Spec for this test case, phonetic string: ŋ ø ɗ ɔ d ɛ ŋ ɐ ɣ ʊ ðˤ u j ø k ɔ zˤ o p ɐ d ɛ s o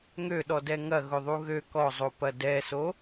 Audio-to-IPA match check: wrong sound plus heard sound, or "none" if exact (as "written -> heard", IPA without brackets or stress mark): j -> ɣ